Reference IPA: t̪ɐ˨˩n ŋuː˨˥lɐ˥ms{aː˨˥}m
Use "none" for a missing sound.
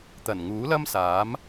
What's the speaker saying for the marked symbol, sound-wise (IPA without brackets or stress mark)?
aː˨˥